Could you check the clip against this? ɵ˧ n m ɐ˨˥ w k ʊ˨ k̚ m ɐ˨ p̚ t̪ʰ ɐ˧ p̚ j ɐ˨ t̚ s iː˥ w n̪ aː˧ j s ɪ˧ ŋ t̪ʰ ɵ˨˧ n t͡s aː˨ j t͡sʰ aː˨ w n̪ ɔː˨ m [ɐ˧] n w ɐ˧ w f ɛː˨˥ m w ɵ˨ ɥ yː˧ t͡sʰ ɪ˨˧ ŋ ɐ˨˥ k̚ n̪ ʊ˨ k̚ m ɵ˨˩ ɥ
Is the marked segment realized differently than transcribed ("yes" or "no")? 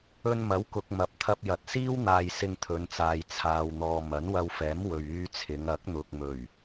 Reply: yes